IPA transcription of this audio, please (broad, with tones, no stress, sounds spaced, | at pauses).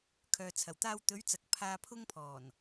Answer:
kʰ œː˨ t͡sʰ ɐ˨˩ w t̪ aː˧ w t̪ ɵ˨˧ ɥ t͡s ɐ˨ k̚ pʰ aː˧ pʰ ʊ˥ ŋ pʰ ɔː˨˩ n